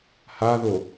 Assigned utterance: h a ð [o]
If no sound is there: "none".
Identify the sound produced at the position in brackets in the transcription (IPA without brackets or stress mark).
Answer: o